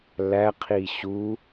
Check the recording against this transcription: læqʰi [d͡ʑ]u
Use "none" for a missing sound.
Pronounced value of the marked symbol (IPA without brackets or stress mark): ɕ